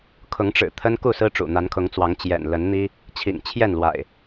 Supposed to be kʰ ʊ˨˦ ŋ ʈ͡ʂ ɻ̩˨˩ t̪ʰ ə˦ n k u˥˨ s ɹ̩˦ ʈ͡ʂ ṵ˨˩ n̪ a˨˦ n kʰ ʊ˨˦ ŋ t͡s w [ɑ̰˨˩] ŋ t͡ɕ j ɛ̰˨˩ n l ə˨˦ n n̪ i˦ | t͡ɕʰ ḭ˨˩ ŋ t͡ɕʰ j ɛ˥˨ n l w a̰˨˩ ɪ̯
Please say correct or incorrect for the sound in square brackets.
incorrect